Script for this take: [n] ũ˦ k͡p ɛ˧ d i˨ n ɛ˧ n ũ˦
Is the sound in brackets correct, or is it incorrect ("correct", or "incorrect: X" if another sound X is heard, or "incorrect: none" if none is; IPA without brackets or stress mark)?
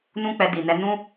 correct